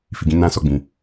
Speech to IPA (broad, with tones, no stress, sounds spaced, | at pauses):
f i˨ ɡ ĩ˨˦ n ã˦ s ɔ˦˨ ɡ͡b ĩ˨